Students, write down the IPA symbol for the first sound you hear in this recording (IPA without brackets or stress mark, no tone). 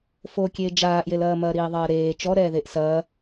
f